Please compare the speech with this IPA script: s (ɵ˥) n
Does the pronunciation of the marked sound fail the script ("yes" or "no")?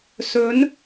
yes